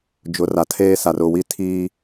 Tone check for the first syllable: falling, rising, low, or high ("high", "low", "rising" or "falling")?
rising